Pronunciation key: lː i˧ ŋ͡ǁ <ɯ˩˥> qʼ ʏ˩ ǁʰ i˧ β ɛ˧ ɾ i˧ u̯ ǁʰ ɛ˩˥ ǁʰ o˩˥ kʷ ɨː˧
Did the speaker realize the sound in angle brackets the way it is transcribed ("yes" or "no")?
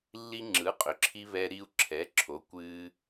yes